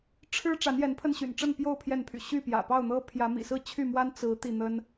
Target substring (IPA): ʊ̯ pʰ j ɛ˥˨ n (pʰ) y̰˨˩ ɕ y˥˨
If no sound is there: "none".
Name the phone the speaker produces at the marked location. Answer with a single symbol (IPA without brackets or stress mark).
pʰ